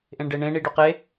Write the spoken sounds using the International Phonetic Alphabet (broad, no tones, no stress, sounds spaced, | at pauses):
ʔ ẽ ɳ ɖ e ɳ ẽ ɳ i ɖ ɵ q e